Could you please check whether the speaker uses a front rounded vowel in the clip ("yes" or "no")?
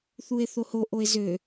yes